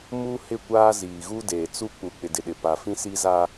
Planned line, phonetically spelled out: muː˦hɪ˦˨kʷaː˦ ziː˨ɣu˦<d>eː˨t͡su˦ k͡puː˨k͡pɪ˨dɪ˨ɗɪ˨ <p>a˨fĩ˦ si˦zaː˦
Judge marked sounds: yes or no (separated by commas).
yes, yes